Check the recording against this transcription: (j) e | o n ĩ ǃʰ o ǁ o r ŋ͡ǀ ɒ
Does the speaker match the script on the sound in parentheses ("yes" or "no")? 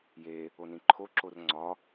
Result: yes